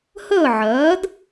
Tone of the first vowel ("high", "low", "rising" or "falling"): falling